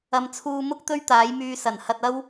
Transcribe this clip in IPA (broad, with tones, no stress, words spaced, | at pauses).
ɐ˧m t͡sʰuː˧mʊ˥k̚ t̪ɵ˥ɥt̪aː˨˥jmyː˧ sɐ˨˩n hɐ˧t̚ɐ˥w